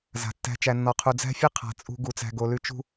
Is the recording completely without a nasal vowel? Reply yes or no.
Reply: yes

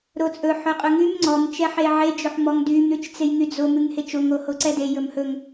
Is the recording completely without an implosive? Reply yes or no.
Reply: yes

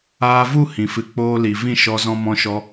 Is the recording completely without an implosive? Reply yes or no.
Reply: yes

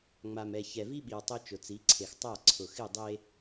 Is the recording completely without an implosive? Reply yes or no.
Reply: no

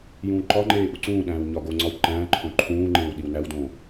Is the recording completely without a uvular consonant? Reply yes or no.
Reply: yes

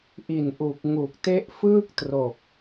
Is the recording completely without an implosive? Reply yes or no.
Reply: yes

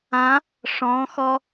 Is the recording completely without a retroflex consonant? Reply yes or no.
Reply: no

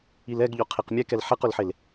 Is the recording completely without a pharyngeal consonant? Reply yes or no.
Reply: no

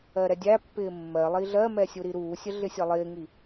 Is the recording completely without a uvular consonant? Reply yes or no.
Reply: yes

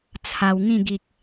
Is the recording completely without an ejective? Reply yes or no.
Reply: yes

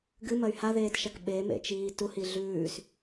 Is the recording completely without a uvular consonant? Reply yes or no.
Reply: yes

